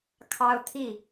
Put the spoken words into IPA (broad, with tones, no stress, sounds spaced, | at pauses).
kʰ ɑ˦ ʊ̯ t̪ʰ i˥˨